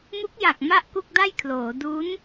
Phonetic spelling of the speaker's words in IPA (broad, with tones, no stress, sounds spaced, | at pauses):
m u˦˥ k̚ j a˨˩ k̚ m a˥˩ ʔ k u˥˩ k̚ d a˥˩ j kʰ l oː˩˦ d u˦˥ n